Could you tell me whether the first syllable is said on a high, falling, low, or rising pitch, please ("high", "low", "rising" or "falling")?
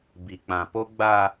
low